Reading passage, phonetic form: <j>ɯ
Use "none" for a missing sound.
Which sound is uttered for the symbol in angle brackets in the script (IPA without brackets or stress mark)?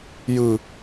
j